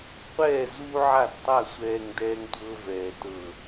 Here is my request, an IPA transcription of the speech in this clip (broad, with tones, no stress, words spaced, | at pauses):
qʷɛː˦˨ zuː˦ʕa˦˨dtˤa˦˨ sʷɛː˨ŋ dɛː˦ŋtʷɤː˦ vɛː˨tɤ˦˨